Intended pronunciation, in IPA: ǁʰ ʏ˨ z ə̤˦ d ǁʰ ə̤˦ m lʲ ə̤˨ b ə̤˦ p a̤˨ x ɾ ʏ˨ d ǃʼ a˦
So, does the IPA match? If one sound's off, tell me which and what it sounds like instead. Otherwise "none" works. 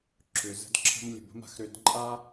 p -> m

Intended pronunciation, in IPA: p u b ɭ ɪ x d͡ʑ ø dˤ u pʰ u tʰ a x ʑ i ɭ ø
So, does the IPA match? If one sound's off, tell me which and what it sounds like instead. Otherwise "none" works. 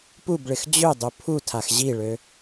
none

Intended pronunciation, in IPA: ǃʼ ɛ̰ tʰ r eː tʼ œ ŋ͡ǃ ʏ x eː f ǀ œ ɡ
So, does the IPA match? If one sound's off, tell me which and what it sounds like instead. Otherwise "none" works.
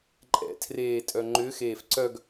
none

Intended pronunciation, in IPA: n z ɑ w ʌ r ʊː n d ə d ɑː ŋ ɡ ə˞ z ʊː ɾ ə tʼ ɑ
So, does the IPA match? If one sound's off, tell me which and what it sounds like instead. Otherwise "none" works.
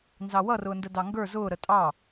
ɑː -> ɑ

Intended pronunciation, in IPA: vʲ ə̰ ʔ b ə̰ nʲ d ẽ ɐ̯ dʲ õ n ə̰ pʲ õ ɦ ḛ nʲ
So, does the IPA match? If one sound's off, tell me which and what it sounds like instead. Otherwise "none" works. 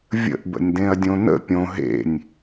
none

